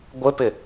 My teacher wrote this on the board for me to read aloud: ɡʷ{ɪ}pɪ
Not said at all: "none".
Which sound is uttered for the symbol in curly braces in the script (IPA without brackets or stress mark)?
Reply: ɪ